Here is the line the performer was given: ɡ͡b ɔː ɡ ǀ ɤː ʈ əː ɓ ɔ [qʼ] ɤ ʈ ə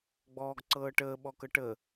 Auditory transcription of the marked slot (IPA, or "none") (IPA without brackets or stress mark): k